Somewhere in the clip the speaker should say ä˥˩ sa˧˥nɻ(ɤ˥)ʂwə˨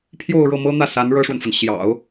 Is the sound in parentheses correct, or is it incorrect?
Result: correct